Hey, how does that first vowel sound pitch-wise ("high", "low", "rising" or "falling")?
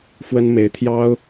high